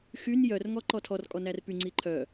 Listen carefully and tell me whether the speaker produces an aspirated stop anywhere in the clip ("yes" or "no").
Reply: yes